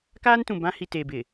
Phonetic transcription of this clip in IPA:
kaː˦ntũ˨bã˦ hi˨te˨bɪ˨

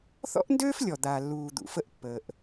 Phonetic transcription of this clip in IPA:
θɔ̰˥ʔndøː˥flʲɔ˩ d̪a˩lːuː˩ d̪ṵ˩fə˥ʔ pːəː˩ʔ

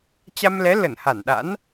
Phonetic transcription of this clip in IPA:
t͡ɕa˧mlɛ˨˦ lə˧˩nha˧˩nɗa̰˧˥n

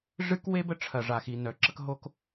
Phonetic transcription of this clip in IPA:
ʐɨ˥kwe˥bə˥ ʈ͡ʂʰɐ˩ʐa˩xi˩ nœ˩ǁə˥kɦo˥k

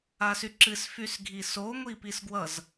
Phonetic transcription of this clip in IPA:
asyǁɨs fysɡʱiso ŋʷipisɡwʌz

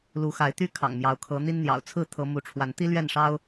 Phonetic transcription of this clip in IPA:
lu˨˦xa˨˦ɪ̯t̪y˦ kʰɑ̰˨˩ŋ mjɑ˨˦ʊ̯kʰɤ˨˦ n̪i˦n n̪jɑ̰˨˩ʊ̯t͡sʰɹ̩˥˨ t̪ʰɤ˦ mu˨˦ʈ͡ʂʰwa˨˦n t̪i˦lɥɛ˥˨nʂɑ˦ʊ̯

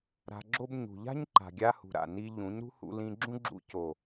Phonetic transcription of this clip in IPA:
ɾa̤˧ɡ͡ǁo˦b ɲṳ˨ʎa̤˦ɲǃa̤˨ɡʲa˧ hṳ˨ɾa̰˨ ni˧ ʎũ˨˦ɲɾṳ˦ hṵ˧lĩ˧ɡ͡ǁũ˦ ɡ͡ǁṵ˧ co˨

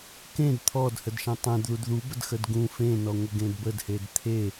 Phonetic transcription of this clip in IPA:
kẽd t̪ʰɔd hədʃẽtˤẽd ðudðubədxəd ɡũ fẽnɔ ŋʷəɡẽdbədhed t̪ʰe

